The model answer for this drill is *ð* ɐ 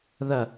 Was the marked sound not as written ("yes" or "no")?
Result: no